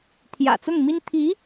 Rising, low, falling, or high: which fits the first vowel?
low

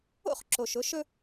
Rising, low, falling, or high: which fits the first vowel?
high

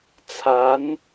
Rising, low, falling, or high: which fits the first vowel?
rising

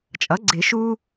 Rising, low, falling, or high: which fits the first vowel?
rising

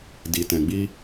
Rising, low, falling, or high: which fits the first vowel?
low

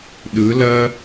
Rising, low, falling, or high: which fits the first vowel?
rising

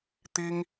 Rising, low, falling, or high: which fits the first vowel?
high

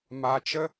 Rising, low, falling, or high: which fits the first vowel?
low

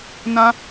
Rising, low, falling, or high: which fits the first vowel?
high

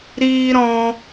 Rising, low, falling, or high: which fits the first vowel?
high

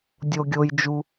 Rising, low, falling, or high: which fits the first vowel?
low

